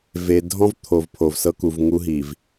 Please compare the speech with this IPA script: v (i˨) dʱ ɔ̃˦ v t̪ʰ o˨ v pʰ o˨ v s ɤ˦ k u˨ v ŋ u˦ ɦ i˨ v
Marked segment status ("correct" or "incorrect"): incorrect